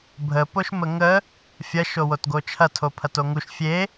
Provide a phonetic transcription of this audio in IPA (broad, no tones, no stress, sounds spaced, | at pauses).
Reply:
bʱ ə p o ʃ m ə ŋ ə | fʲ ɐ ʃ o w o t ɡ o t͡ʃʰ ɐ tʰ o pʰ ɐ t o ŋ u ʃ fʲ e